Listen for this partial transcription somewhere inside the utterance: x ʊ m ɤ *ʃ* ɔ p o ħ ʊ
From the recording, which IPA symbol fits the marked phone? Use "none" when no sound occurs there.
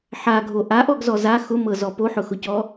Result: z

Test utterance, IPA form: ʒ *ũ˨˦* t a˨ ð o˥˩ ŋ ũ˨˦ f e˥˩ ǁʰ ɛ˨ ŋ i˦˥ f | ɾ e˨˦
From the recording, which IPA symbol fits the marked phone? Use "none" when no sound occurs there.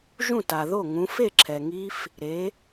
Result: ũ˥˩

